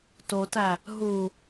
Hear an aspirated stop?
no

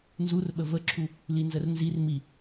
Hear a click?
yes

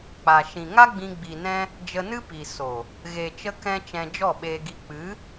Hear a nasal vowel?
yes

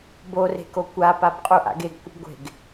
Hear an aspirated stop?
no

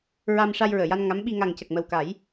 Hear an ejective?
no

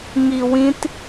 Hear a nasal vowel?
yes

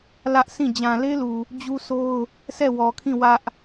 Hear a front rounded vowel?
no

